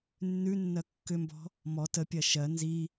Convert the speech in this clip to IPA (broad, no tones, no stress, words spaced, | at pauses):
nːʉnːɜ kːʏmbɔ̤ | mɔ tə pʲɜʃɜ nzi